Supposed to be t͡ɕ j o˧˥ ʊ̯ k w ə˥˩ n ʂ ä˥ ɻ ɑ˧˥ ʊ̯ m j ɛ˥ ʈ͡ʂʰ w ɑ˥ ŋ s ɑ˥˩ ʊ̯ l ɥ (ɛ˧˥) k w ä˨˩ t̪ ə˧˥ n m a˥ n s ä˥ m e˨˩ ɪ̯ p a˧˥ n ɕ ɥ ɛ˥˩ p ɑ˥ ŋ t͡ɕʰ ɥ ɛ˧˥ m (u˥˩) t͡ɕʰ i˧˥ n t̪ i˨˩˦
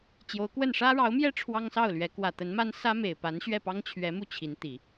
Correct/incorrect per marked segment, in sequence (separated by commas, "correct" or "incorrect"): correct, correct